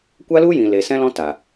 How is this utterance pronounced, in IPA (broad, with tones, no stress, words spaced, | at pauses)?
kʷa˦lu˦jĩ˨ le˨ sɛ̃˦lɔ̃˦ ta˨